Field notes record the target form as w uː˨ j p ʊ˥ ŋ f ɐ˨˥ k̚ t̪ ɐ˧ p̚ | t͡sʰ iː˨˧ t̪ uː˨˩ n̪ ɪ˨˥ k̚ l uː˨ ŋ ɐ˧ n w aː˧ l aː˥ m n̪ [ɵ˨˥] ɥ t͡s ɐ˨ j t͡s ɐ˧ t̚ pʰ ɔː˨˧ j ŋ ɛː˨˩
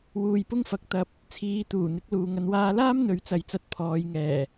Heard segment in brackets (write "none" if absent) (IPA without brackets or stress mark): ɵ˨˥